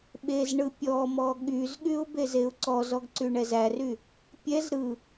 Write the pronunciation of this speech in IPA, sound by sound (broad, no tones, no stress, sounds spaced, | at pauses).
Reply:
ɓ e z ɳ ɯ pʲ ɔ m ɔ ɠ y z ɠ y ʊ̯ b e z e ʊ̯ ǀ ɔ z ɔ ɡ ǀ y ɳ ɛ z æ r y | pʲ ɛ z ɾ ɯ